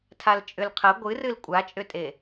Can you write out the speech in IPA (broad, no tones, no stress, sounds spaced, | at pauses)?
tʰ a l t͡ʃʼ ʏ l qʰ ɐ ɡʷ ɨ r ɨ l kʷʼ a t͡ʃʼ ʏ tʼ e